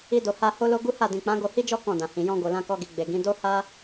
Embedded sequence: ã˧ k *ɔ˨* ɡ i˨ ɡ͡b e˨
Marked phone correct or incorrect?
incorrect